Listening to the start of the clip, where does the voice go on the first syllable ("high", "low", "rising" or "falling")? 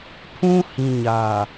high